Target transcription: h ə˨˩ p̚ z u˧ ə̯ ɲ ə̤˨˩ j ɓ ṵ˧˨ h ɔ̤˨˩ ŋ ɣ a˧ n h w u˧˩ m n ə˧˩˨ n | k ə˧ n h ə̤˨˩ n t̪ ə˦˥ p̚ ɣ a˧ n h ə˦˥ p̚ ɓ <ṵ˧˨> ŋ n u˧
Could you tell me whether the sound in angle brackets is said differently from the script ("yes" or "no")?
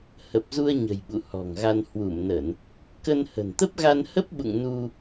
no